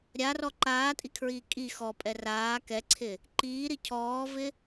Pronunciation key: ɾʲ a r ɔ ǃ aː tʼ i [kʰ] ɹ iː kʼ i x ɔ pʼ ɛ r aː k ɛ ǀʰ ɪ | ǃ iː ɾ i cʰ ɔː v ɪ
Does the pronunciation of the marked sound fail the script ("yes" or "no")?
no